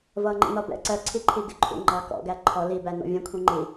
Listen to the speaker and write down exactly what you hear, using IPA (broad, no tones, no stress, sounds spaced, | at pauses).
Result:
v ʌː ŋ͡ǃ ḭ n ɒ b ɛ̰ ǀ ɜ ǀʰ i ǃʰ i ɡ ɪ ǃʰ ṵ ŋ͡ǃ ɑ k ɔ̰ ɡ æ ǃʰ ɔ l i b æ n ɔ̰ vʲ ɛ̃ kʷʰ ĩ ŋ͡ǃ i